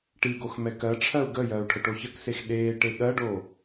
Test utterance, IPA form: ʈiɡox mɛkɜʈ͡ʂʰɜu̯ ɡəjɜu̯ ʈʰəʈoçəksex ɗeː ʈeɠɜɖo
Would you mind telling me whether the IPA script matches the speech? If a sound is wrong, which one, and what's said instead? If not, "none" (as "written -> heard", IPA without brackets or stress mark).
none